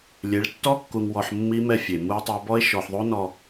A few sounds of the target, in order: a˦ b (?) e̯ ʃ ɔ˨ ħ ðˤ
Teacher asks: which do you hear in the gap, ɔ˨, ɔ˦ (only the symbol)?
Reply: ɔ˦